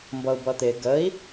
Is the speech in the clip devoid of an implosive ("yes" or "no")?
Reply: yes